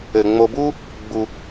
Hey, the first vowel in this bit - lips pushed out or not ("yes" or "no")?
no